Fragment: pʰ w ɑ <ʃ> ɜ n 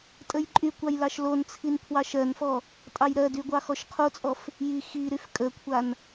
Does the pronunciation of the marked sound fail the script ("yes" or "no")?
no